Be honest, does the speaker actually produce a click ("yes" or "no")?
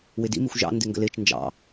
no